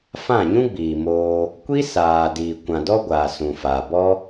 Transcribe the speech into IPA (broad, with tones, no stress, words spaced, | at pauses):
fã˦˨ɲũ˦ɡ͡biː˨moː˧ | kʷi˦saː˨ diː˨ kʷã˨dɔ˦ɡʷaː˨ sũ˨faː˨bɔ˦